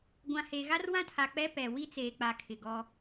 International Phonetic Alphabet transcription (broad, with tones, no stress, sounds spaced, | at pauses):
ɡʷ ã˨ h e˨ ɣ a˦ r w ã˦ tʰ a˨ k͡p ɛ˦ p ɛ˨ w i˦ t͡s eː˨ k͡p a˨ kʰ ɪ˨ ɡ ɔ˦